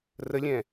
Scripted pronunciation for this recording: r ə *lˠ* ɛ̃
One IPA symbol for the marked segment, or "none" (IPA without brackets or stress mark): lʲ